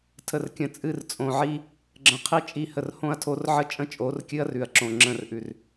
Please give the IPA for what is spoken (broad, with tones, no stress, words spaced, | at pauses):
tʰə˨rkʲə̃˨t͡sʼɨ˦˨r t͡sʼõ˨ʕi˦ | ɡ͡ǁə̃˨ qʰi˦ t͡ʃʼi˦˨hə˨rhõ˦ɐ̯tʰo˦r ʕə˦t͡ʃʼə̃˦t͡ʃʼo˨˦r kʲɨ˦ɐ̯rʉ˨ɐ̯ǁõ˨ ŋ͡ǁə̃˦˨rʔʉ˨r